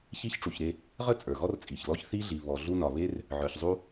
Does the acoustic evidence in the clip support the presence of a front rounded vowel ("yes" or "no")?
no